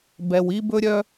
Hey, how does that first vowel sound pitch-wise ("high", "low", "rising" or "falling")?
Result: low